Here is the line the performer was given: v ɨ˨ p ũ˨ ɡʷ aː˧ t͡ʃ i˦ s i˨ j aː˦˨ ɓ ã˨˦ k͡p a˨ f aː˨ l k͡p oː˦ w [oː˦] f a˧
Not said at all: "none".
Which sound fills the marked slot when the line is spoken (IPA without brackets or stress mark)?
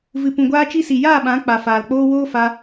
oː˦